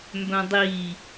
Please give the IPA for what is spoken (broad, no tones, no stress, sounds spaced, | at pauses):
m b œ̃ dˤ i